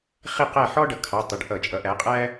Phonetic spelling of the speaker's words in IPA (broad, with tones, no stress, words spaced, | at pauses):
χi˦˨qæ˦˨ħɔ˥ ɖʌ˩˧kʰɑ˩˧˩tˤʊ˩˧˩ɖ ʔʌ˧˩˧t͡ʃʼʌ˩˥ʔæ˩˥qʼæ˥